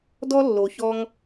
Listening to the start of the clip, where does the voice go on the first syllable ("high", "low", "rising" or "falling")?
high